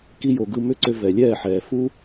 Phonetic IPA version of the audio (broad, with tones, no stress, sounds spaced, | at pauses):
k i˧ j o˨ ɡ ɯ˧ m ʏ˦ ǀ ʏ˧ v ɛ˨ lʲ ɛː˦˨ ħ ɛː˨ f u˦